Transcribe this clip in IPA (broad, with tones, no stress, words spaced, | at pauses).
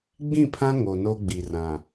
ɡ͡bĩ˦˨pʰã˦ ŋo˨no˦ɡ͡bi˨ rã˨